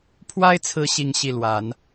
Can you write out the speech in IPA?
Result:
pʰwa˥ɪ̯t͡sʰɹ̩˧˥ ɕi˥˧ŋ ɕi˥˩lwa˨˩˦n

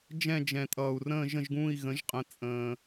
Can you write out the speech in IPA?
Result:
d͡ʒɛ̃˥˧d͡ʒɛ̃˨tʼʌː˨u̯rə̃ː˥˧ ʒə̃˥˧ʒɡũː˥˧i̯ɣə̃˨˥ʒqʼə̃˨˥ t͡sʼə̃ː˨

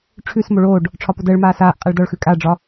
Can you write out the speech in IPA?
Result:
ʈ͡ʂʰʉs moɭoːɖ | ʈ͡ʂʰɒpodəːɭmaː saːʔ qʼaɭdɒɭxʉ kʼaɖ͡ʐɒ

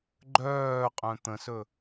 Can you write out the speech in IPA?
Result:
ɡ͡ǃœːqʼœ̃ t̪ə̃sɵ

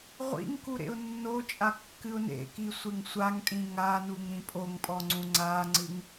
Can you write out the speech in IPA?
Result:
ʁʷḭŋku ɾḛʊ̯nːot͡ʃʼa kːɨʊ̯nḛki sʷeŋsʷaŋtʼĩ ŋanuŋ ɾĩpʼoŋpʼɔ ŋ͡ǀũŋ͡ǀaŋ͡ǀɨŋ

